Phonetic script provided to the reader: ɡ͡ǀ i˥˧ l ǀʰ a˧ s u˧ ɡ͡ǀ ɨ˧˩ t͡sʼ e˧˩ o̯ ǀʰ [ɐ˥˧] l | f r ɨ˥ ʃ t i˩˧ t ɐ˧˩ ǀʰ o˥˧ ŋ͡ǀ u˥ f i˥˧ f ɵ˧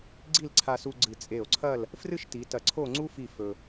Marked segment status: correct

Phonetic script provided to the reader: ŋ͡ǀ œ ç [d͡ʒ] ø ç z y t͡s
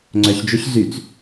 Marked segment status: correct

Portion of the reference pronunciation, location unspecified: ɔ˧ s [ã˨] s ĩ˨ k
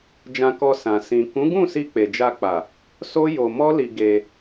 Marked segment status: correct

